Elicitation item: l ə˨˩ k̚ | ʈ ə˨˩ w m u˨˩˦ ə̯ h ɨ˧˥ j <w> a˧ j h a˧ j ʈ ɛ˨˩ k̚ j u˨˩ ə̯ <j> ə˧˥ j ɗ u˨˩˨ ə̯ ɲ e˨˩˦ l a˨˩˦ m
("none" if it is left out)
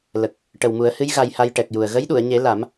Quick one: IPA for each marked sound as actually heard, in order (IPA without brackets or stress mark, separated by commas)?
ɣ, ɣ